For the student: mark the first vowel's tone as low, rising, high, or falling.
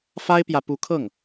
high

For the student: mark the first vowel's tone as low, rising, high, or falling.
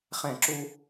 falling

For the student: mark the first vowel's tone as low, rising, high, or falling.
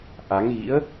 rising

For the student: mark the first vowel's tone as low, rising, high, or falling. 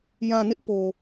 low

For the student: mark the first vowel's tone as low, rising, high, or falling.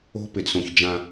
high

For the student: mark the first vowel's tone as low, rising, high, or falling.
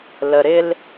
low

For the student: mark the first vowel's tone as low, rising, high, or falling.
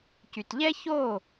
low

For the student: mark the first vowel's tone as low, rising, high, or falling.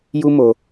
high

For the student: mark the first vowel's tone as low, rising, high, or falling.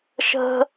high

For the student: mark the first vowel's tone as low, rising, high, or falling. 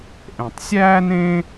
low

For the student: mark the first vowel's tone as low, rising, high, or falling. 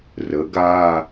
rising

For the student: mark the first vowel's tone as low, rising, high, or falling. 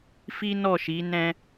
high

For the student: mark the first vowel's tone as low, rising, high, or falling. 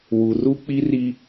low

